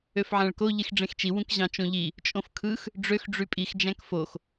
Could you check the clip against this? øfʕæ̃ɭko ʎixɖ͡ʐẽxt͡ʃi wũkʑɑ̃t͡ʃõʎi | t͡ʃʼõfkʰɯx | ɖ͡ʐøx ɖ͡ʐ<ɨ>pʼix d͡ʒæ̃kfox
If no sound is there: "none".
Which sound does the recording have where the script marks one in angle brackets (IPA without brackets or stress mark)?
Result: y